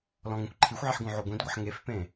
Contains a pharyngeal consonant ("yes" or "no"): yes